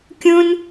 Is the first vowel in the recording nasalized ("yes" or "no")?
yes